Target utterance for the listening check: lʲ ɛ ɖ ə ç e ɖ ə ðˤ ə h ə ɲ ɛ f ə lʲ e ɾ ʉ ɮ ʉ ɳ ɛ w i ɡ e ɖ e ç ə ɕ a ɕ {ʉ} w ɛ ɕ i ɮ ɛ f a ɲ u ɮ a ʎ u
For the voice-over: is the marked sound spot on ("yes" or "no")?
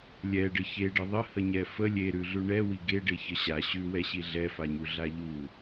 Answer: yes